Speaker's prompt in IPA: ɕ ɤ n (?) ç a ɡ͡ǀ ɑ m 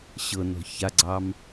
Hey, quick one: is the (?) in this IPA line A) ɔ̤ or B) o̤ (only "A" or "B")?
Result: A